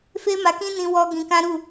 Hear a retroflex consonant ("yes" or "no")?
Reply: no